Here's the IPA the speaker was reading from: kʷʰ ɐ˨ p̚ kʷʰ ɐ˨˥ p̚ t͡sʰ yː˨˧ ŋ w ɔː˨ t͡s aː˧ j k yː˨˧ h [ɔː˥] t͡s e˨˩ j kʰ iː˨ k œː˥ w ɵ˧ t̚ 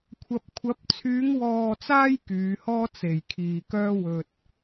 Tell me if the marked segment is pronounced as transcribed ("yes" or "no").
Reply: yes